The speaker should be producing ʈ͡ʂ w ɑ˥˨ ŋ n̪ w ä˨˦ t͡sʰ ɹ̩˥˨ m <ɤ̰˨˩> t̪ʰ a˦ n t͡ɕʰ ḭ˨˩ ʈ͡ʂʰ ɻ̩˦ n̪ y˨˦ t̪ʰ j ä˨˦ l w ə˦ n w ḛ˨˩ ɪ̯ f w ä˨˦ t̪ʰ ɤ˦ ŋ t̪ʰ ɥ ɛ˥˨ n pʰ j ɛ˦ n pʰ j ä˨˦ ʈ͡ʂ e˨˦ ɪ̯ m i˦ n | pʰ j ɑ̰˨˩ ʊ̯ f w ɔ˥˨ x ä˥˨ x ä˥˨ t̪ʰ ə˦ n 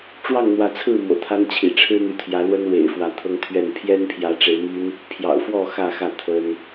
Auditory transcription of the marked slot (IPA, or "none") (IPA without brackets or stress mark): ɤ̰˨˩